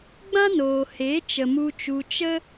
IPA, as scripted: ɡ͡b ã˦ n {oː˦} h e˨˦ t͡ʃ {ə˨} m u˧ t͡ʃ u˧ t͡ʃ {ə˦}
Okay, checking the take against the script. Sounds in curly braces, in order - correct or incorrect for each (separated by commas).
incorrect, correct, correct